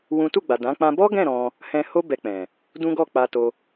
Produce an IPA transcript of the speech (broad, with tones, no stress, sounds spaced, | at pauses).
w ũ˦ t u˦˨ ɡ͡b a˨ d ã˨˦ k͡p ã˧ b ɔ˦ ɡ ɛ̃˦˨ ɾ ɔ̃˧ | h ɛ̃˧ h o˦ b ɛ˧ k͡p ɛ̃˨ | d ũ˦ ɡ ɔ˦˨ k͡p a˧ t o˧